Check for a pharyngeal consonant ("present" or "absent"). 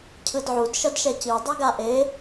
present